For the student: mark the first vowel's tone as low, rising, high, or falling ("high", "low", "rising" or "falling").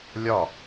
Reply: falling